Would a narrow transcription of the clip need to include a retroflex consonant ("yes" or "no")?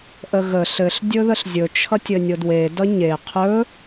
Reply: no